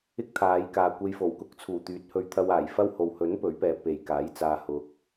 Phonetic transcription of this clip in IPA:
ɪ˥ k̚ t̪ʰ aː˨˧ j k aː˨ kʷ e˧ j f o˨˩ w k ʊ˧ k̚ t͡sʰ uː˨˩ t̪ yː˨˥ t̚ h ɵ˨ ɥ t̪ʰ ɐ˧ w aː˨˩ j f ɐ˥ w h o˨ w h ɵ˨˥ n p ɵ˨˥ ɥ p ɛː˨ p e˨˩ j k aː˨˥ j t͡s aː˨ h ʊ˨˥ k̚

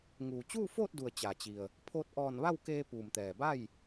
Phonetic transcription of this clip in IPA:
ŋ uː˩ t͡ɕ uː˥˨ f oː˥˨ t̚ d u˩ ə̯ t͡ɕ a˩ t͡ɕ i˩ ə̯ | pʰ oː˧ t̚ ʔ ɔː˧˩ n ʋ a˥˨ w k eː˧ p uː˩ m t̪ ɛː˩ b a˥˨ j

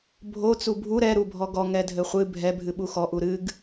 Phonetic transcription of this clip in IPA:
bʱ o t͡s u bʱ u ɾ ɛ ɾ u bʱ ɔ ɡ ɔ ŋ ɛ dʱ ɘ χʷ ɨ bʱ ɛ bʱ ɨ ɓ u x ɔ ʔ u ɾ ɨ ɡ

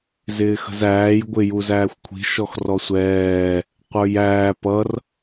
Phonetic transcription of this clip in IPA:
z ɪː x ə̤ z æː j ɡʷ ɪ j u z æː xʷ kʷʰ i̤ ʃ ɔ x r ɔ sʷ ɛː | qʷ ə˞ j æː p ʌ r

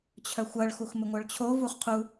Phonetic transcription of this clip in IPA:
t͡ɕʰ œ xʷ ɐ ɭ x u x m ɪ ŋʷ œ ɭ t͡ɕʰ o v u χ qʰ u

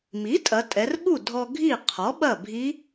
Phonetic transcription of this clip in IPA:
m i˩˥ tʼ ɐ˩˧ tʼ ɛ˩˧ r ɠ u˥˩ dʱ ɔ˧ ɡʱ i˥˩ qʰ ɔ˩˥ ɓ ɐ˥˩ bʱ i˧˥

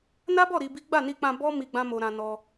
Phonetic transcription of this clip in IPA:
n a˦ b ɔ˦˨ ɾ i˧ b i˦ ɡ͡b a˦˨ n i˧ k͡p ã˧ b ɔ˦ m i˧ ɡ͡b ã˦ m o˧ ɾ ã˧ n ɔ˧

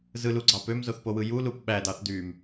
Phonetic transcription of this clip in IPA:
z ɯ l u ɡ͡ǀ ɑ p ø m z o θ p o w ɯ j u l u p ɓ æ d ɑ θ d yː m

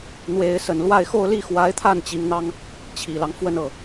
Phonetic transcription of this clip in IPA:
n̪ w e˧˥ ɪ̯ s ə˨˩ n l w a˥˧ ɪ̯ x o˥˧ ʊ̯ l i˥˩ x w a˧˥ ɪ̯ t̪ʰ a˥˩ n t͡ɕ i˧˥ ŋ n̪ ɑ˥ ŋ | t͡ɕʰ i˨˩ l ɑ˦ ŋ f w ə˥˧ n ɤ˥˩

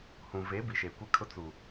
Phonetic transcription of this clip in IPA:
h ũ˨ v eː˨˦ b i˨ ʃ eː˨ kʷ ɛ˦ kʰ ʊ˦ t͡s u˨

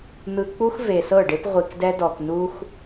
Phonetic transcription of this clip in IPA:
n̪ ɯ˨ k͡p u˦ x v e˨ s ɤ˦˨ ɖ e˦ p ʁʷ i˨ k d ɛ˦ d ɔ˨ k n u˦ x

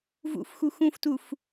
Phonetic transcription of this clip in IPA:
v ṵ f x u x ũ f t u f

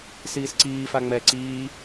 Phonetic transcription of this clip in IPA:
s iː s ǀ iː f a ŋ͡m ɛ ǀ iː

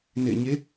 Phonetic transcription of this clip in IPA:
n ḛ˧˨ ɲ e˦˥ k̚

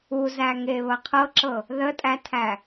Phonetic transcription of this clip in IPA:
u z æ ŋ e β ɐ qʰ ɤ ǁ ɤ | ð ə tʼ æ tʰ æ

